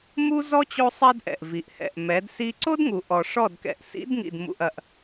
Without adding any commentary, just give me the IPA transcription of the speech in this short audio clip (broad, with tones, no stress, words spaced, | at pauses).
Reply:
mu˦zɔ˦ t͡ɕo˦sˤɛ˦dʔɛ̰˨ʔ vi˨ʔ hɛ̰˨ʔmɛ˨˦d si˧ǀo˦d ŋu˨ʔɔ˨ʂɔ˦˨dkɛ̰˨ʔ sḭ˨˦dŋḭ˨dmṵ˨ʔ ɐ˨ʔ